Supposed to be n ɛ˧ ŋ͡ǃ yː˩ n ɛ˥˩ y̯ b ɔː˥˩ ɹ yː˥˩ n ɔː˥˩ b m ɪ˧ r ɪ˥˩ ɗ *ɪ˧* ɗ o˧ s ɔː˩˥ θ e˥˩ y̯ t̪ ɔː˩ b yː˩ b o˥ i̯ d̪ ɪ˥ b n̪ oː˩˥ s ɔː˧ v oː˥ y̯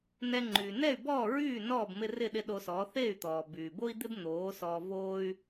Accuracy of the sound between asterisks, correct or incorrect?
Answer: correct